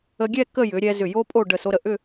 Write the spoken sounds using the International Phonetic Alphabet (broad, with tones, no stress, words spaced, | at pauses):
ə˧ɡʲɛ˥˧ kə˥˧jʏ˩˧ɾʲɛ˧ zʏ˧˩jo˥pʼo˥˧ ɖə˧˩so˧ɾə˧˩ ʔʏ˥˧